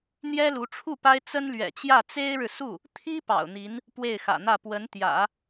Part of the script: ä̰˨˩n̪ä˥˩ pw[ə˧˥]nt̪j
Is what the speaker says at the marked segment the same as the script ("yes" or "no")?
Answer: yes